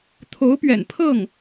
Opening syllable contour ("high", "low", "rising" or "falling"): rising